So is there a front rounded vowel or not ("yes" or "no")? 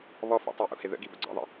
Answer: no